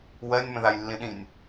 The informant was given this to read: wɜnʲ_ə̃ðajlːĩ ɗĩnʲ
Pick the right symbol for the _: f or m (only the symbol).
m